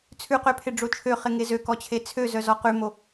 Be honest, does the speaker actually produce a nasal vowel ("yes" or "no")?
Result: no